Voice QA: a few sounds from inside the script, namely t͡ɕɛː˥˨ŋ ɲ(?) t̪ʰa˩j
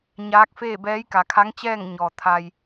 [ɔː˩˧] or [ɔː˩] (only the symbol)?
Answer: ɔː˩